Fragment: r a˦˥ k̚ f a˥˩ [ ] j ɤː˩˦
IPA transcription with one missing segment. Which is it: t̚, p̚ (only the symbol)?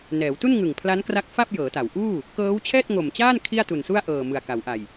p̚